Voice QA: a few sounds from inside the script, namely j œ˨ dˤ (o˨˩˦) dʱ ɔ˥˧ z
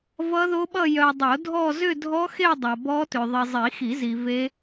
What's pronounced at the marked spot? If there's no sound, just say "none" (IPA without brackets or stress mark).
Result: o˨˩˦